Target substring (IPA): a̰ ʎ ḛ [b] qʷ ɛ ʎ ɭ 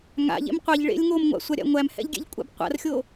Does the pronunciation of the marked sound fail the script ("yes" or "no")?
yes